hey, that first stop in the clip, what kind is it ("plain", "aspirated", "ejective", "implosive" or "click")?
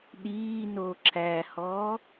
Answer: implosive